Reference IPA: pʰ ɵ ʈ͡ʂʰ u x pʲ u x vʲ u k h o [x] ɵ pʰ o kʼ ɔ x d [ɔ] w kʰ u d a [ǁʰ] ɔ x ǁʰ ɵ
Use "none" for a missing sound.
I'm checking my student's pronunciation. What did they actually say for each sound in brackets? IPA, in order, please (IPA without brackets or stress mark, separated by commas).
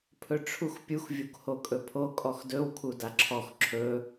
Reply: kʼ, ɵ, ǁʰ